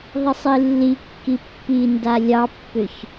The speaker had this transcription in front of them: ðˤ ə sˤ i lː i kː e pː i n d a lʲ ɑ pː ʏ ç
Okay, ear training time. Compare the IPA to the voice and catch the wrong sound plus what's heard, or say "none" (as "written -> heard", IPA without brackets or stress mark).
e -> i